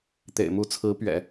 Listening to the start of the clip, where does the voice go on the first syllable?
low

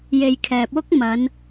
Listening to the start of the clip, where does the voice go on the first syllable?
low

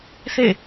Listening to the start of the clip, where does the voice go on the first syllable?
falling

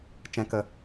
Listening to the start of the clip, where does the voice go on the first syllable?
low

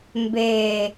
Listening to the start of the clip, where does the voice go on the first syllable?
low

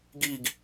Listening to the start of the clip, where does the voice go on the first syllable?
low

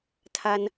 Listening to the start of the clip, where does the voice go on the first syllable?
high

